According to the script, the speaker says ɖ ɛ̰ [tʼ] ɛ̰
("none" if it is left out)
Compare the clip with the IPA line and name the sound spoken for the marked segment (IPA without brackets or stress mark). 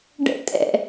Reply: tʼ